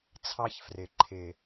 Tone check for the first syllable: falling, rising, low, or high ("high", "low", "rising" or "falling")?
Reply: high